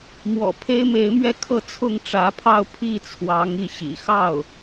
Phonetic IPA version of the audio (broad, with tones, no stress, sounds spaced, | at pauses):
m w ɔ̰˨˩ pʰ e˥ ɪ̯ m e˧˥ ɪ̯ m ɥ ɛ˥˧ kʰ ɤ˥˧ t͡sʰ ʊ˥˩ ŋ ʈ͡ʂ ä˧˥ pʰ ɑ˥˧ ʊ̯ pʰ i˥˩ t͡sʰ w ɑ˧˥ ŋ i˥˩ ɕ ḭ˨˩ x ɑ˥˩ ʊ̯